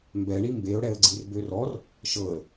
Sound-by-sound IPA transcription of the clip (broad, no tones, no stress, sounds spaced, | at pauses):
m b ɛ ɳ i m b e ʊ̯ ɽ ɛ ə̯ ɡ͡ǀ i r b ø r ɔ r | ʃ ɤ ə̯